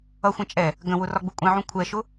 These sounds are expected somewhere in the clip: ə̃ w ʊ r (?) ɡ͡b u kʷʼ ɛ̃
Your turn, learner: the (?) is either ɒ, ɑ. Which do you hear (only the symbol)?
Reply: ɒ